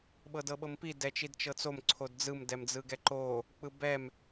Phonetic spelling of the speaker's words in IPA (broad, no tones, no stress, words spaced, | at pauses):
ɓɤdɤɓɤmpi dɛt͡ʃidt͡ʃɤt͡som ǀʰodd͡zɯm dɛmd͡zɯɡɛǃo | k͡pɯbɛm